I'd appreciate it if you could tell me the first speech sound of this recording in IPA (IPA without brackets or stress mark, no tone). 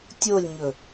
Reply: tʲ